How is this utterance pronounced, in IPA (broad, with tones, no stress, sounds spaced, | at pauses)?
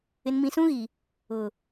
ɪ˨ n m ĩ˨ s ũ˦ ɣ i˨ | ʊ˨